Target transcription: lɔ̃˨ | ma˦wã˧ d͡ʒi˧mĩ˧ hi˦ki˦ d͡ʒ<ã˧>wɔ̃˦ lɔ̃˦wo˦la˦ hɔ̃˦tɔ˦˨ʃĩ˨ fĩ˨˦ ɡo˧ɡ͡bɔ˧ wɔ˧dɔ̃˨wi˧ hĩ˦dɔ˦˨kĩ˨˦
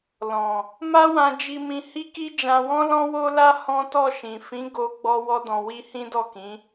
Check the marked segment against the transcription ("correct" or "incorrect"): correct